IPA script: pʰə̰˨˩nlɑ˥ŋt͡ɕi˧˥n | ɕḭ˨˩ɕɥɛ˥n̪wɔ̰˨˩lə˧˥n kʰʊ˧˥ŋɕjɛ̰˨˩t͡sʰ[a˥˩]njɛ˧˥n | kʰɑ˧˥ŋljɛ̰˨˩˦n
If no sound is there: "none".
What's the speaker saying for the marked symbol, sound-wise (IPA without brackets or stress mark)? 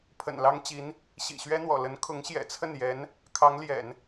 ə˥˩